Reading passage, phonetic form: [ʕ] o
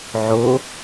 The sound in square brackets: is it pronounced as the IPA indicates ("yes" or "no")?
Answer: yes